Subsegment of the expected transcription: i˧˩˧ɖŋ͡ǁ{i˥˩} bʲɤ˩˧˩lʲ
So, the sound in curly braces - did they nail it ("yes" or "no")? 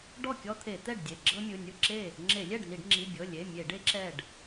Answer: no